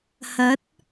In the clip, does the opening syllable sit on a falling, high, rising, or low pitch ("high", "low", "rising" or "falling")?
rising